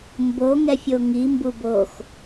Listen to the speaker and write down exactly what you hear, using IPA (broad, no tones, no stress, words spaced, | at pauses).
mbo ŋɛfʲoŋi mbubox